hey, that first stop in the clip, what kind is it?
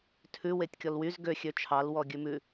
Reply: aspirated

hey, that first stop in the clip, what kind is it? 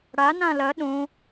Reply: implosive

